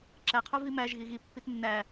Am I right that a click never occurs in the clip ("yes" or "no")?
no